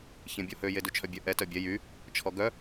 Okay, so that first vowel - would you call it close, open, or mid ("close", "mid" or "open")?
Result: mid